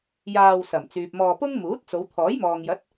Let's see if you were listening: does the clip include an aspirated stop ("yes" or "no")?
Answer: yes